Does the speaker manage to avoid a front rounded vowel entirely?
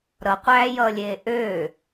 no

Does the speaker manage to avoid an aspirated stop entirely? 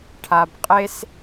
no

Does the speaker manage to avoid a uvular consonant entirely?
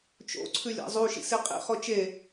no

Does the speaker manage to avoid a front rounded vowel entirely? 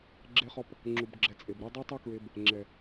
no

